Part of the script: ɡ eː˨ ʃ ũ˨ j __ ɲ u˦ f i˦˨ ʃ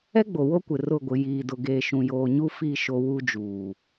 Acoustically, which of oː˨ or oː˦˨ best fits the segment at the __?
oː˨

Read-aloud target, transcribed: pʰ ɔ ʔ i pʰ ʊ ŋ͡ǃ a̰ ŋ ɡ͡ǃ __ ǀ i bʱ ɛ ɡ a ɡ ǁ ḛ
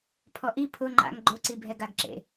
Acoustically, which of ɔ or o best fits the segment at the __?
o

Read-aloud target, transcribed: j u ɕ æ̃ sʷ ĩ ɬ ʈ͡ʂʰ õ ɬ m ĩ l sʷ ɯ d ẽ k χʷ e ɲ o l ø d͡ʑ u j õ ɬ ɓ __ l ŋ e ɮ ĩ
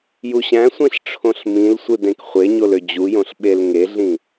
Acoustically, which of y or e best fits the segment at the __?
e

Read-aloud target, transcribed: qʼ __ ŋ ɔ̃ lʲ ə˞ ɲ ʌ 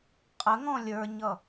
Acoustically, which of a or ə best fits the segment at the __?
ə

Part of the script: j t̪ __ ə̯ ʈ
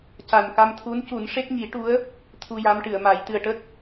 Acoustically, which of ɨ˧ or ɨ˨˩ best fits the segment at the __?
ɨ˨˩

